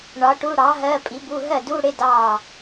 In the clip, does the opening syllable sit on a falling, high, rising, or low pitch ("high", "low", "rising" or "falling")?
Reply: rising